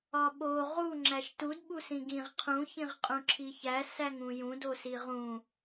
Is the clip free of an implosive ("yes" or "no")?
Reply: no